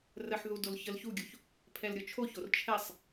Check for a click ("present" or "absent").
absent